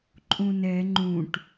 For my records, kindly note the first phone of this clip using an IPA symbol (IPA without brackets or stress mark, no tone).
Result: ǃʼ